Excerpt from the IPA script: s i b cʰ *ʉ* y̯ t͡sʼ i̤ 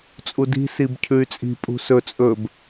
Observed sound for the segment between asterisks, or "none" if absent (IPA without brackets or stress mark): ʉ